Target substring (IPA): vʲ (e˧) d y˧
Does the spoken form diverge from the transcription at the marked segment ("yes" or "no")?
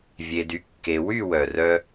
no